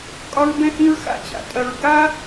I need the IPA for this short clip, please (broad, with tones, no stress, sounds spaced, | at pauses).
kʼ ɒ˦ ɹ b ɛ̃˦ h ĩ˦ ɹ x a̰˦ t͡ɕ a̰˨ tʼ ɐ˧ ɹ ɡ a˦